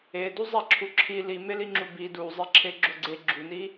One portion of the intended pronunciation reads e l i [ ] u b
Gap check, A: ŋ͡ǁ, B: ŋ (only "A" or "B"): A